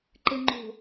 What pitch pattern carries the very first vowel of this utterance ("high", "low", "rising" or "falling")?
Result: low